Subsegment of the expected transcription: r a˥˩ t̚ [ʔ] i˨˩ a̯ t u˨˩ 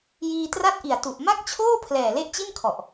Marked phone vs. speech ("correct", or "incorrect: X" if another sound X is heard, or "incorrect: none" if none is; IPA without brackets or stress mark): correct